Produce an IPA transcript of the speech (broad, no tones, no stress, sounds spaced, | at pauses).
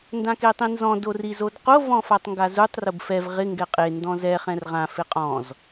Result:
n d ã k e tˤ ĩ n z ɔ̃ d o r i z o d q o v ɔ̃ f a tˤ ŋ ɡ a z u tˤ r ʊ b f ɛ v ʁ ɪ ŋ ɡ ɛ qʼ e n d ɔ̃ z ɛ χ ɛ̃ r ʁ ã f ɪ qʼ ɔ̃ z